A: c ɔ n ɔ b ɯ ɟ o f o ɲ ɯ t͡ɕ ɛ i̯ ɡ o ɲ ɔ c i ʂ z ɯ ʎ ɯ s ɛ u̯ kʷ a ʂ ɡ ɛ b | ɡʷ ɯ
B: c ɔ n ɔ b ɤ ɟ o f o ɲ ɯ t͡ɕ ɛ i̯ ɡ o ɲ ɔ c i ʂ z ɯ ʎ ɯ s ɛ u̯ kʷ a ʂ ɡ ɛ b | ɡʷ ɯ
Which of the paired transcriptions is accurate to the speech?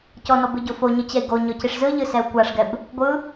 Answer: A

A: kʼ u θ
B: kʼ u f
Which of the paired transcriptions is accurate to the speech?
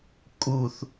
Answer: A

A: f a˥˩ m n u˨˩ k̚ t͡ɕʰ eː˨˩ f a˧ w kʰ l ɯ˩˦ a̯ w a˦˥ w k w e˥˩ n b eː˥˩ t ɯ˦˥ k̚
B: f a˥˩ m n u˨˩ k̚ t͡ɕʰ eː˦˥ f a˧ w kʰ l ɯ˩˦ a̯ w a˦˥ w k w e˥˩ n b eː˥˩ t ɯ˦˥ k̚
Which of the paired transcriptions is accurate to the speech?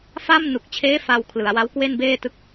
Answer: B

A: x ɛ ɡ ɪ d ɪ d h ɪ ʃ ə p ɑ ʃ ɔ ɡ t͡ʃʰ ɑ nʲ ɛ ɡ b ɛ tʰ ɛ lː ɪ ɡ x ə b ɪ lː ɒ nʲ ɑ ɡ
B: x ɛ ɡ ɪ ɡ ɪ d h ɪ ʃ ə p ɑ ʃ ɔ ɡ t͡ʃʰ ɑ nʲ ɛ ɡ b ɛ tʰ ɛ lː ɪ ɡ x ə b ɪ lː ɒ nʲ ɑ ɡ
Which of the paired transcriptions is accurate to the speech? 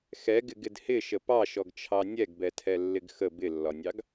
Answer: B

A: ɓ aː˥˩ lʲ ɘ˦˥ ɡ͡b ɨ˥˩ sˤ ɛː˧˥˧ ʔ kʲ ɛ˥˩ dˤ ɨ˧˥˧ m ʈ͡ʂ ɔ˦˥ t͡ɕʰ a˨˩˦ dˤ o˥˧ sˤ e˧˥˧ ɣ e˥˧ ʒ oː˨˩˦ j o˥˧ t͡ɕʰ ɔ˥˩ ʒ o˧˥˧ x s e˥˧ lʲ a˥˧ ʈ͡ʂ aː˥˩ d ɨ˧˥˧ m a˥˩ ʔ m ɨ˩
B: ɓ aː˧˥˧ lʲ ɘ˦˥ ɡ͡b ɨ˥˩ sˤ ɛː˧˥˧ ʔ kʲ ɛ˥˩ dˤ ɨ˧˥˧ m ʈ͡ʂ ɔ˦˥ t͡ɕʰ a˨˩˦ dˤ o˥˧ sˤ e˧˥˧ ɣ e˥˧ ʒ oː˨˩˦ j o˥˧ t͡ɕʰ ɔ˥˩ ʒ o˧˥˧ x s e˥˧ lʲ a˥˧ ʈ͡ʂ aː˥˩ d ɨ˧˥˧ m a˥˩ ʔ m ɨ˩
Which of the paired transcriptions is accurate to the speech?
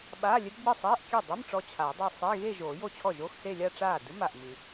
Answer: B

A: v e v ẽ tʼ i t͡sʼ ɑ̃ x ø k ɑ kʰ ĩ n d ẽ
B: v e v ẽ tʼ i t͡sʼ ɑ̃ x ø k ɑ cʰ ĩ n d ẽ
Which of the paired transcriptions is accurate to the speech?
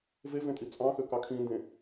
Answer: A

